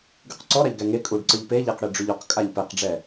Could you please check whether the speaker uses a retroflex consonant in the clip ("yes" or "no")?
yes